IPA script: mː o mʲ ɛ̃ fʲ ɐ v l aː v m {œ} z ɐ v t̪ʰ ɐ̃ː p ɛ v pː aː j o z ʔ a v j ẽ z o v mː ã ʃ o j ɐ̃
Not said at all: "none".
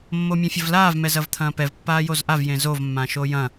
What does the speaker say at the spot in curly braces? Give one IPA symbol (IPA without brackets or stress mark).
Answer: ɛ